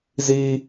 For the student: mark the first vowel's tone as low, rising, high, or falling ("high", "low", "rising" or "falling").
high